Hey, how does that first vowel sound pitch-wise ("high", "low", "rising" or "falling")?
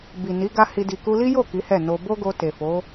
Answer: low